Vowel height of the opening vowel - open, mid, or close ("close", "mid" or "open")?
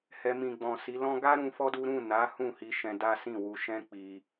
mid